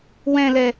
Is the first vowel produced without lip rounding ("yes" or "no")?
yes